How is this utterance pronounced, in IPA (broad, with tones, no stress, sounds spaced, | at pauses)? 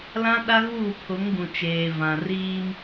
l ã˦ ɗ a˦ ɣ uː˦˨ pʰ ʊ˨˦ ŋ ɡ ũ˨ t͡ʃ eː˨ v ã˨ r iː˦ m